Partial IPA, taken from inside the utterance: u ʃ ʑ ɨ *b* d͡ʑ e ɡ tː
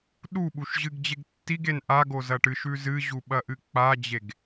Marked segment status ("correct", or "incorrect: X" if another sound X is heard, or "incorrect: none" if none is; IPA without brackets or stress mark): incorrect: ɡ